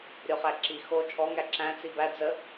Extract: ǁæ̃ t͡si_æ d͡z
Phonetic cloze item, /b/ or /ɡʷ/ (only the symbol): b